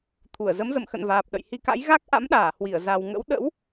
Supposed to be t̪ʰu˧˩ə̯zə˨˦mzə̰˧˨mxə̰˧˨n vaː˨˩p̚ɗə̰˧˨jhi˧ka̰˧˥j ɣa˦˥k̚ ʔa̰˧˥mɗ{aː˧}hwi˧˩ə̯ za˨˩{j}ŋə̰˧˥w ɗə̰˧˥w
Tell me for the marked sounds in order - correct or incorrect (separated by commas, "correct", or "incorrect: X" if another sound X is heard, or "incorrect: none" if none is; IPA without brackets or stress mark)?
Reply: incorrect: aː˧˩, incorrect: w